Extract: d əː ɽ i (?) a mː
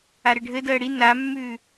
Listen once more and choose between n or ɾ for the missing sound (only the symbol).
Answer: n